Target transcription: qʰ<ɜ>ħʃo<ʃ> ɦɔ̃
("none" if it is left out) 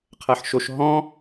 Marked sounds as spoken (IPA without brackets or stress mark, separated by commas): ɜ, ʃ